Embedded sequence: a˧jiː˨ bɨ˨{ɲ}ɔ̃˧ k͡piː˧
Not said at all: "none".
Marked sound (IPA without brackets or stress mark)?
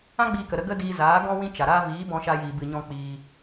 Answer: ɲ